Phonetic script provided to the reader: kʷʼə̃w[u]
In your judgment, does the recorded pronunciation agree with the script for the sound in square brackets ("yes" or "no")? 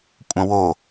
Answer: no